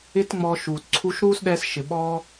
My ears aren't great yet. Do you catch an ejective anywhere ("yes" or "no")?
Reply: no